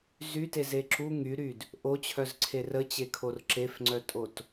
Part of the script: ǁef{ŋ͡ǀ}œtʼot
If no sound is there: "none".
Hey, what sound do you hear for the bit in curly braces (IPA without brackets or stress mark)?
ŋ͡ǀ